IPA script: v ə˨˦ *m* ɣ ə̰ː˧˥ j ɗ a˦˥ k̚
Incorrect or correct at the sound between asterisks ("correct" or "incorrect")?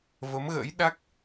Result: correct